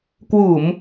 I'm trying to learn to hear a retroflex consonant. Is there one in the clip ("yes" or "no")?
no